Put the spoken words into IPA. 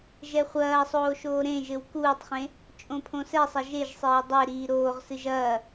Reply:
ʒ ɛ χʷ ɐː sˤ oː ʃ oː ɾ ẽ ʒ ɘ w k uː tˤ χ ẽ | t͡ʃʼ õ pʰ õ s ɛ sˤ ɐ ʒ e ʒ sˤ eː dˤ e ɾ iː ɾ oː ʁ s ɨ ʒ ɐː

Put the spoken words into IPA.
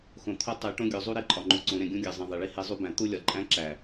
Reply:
x õ˨ t̪ʰ o˦ tˤ e˨˦ ʈ õ˦ ɡʲ o˨ zˤ u˦ ɾ e˦ ǃʼ ɒ˨ ŋ͡ǃ u˨ ǀ õ˨˦ ɾ ẽ˨ ɡʲ ũ˦ ɡʲ æ˨ zˤ ĩ˨ ðˤ e˨ ɭ i˦ h e˦ zˤ u˦ b æ̃˨˦ t̪ u˦ lʲ ɒ˨ ǃʼ æ̃˦ ǁ æ˨

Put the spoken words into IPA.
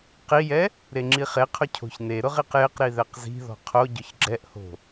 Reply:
q i j ɛ | ɾ e ŋ͡ǁ i χ e qʰ ʊ cʰ o̤ ç n e ɾ ʊ ʁ i q j ɪ q ɾ i ð ɛ q z i̤ ð ɔ̤ qʰ o ɟ ʊ ç ɡ͡ǁ ɛ ʔ h o̤

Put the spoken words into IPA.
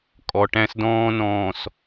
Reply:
kʼ ɔ˨ ʈ æ̃˦ s d ɔ̃ː˦ n ɔ̃ː˨ s

